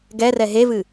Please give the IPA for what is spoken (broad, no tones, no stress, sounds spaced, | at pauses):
ɡ ɛ r ɛ ɦ e v ɨ